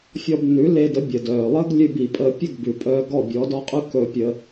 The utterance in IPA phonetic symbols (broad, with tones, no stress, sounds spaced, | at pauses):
fʲ ɔ˧ b nː ʉ˩˥ l e˧ d ə˩˥ bʲ ə˩ d œː˩ lˠ əː˥ ɡ lʲ ʉ˧ b i˩ pʼ əː˧ pʲ ə˥˩ ɡ b ʉ˩ pʼ œː˧ ɡ ɔ˥˩ bʲ ɔ˩˥ d ɔ˥ qʼ ʉ˥ k ɵ˧ pʲ ə˧